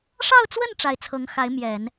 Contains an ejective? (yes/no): no